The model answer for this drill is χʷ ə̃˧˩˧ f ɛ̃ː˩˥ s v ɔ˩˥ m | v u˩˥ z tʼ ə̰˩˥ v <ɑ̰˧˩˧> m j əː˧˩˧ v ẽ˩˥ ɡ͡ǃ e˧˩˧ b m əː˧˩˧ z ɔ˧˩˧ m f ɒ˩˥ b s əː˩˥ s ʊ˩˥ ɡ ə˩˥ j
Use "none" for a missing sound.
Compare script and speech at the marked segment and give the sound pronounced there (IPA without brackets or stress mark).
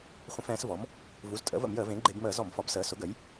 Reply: ə̰˧˩˧